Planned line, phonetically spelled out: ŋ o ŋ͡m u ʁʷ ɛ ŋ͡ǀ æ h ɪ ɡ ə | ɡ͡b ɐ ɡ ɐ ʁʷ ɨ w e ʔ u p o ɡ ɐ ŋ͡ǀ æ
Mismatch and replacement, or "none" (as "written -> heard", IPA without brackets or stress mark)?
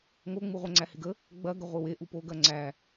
ɨ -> ɪ